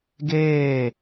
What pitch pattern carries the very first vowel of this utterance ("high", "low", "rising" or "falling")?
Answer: falling